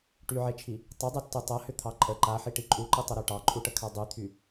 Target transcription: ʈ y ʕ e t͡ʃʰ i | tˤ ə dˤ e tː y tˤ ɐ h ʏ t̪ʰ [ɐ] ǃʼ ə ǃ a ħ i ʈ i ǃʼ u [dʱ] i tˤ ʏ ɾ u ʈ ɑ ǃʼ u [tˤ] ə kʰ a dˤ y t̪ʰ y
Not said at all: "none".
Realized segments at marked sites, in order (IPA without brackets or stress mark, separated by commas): ɑ, ǃ, ʈ